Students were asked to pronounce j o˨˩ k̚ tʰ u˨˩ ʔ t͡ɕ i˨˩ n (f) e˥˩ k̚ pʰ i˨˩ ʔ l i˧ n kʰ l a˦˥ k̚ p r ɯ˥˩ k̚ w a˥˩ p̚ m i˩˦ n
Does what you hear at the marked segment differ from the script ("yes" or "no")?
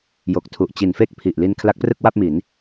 no